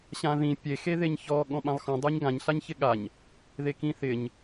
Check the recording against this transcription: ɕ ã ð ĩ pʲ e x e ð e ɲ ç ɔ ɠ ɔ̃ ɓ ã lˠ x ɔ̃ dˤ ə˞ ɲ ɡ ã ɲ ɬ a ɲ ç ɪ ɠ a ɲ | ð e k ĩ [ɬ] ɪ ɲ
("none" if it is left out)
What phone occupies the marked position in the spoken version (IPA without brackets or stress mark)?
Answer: θ